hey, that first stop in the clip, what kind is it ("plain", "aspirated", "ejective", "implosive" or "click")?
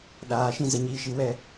implosive